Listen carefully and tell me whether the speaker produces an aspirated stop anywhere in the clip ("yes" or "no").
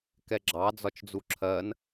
yes